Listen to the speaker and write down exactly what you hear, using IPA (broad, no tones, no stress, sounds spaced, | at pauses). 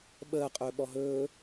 ɓ əː qʼ ɵː ɓ ɔ ɦ ɵː